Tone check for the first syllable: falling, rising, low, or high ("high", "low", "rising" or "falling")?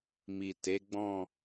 low